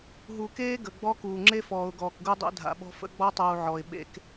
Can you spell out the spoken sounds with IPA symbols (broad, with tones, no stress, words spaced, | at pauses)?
ɦu˨keː˦ ɡə˨ɡ͡bɔ˦ kuː˨ŋ͡ǁe˦fɔː˨ʊ̯ɡɔː˨k ɡu˦dˤḛ˦dʱa̰˨ɓɔ̤˦ fə̰˦ɡ͡bɔ˦tˤuː˨ ʕɔ˨ɪ̯ ɓḛ˦k